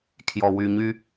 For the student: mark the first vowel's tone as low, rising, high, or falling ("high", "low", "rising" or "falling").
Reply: low